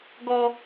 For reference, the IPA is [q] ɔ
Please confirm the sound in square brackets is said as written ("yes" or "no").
no